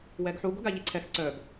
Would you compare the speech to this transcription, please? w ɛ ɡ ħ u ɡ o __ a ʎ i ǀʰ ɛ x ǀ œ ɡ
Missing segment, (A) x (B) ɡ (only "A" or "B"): B